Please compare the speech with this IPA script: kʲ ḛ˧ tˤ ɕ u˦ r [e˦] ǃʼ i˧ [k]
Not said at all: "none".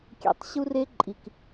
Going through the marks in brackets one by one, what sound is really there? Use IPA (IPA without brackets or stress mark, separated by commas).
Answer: e˦, k